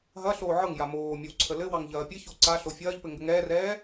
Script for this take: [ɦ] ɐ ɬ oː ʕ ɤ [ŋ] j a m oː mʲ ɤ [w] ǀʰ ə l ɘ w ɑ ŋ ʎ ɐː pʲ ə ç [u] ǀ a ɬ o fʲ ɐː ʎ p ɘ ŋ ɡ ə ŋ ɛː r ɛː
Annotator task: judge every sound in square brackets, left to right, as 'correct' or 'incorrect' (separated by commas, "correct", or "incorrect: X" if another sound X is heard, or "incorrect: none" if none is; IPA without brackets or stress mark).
correct, correct, correct, incorrect: o